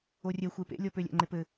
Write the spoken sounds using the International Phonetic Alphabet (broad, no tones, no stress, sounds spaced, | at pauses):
o rʲ ɛ xʷ e p ḛ lʲ ɔ p ø lʲ æ̰ ŋ͡ǃ e p ɘ